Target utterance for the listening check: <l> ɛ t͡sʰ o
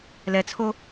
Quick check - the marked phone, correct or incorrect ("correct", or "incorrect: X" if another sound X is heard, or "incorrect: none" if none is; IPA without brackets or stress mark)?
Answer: correct